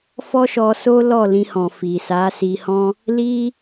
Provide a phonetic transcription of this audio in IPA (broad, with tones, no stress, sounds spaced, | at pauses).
f ɔ˦ ʃ ɔ˧ s o˦ l ɔ˦˨ l ĩ˧ h ɔ̃˨ f i˨ s a˨˦ s i˧ h ɔ̃˦ | l i˦